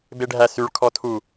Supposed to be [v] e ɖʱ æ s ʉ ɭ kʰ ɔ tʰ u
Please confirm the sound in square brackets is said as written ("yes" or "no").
no